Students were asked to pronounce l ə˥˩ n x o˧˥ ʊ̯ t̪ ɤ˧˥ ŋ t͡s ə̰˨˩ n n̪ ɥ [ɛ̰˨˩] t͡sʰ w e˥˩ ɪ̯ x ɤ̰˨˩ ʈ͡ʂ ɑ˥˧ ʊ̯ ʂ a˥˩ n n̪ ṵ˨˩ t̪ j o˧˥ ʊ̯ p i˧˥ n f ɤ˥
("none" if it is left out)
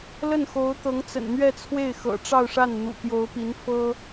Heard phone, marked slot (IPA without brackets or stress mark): ɛ˥˧